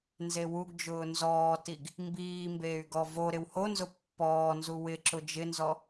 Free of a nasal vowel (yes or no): yes